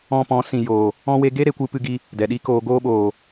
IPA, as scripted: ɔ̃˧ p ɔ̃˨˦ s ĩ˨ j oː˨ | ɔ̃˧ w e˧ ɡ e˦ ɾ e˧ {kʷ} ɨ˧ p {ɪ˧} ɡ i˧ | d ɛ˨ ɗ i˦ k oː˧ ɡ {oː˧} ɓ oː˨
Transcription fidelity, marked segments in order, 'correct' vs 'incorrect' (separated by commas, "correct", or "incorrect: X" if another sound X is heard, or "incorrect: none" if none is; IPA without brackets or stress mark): correct, incorrect: ɨ˧, correct